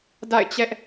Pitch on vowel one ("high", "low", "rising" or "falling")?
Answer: falling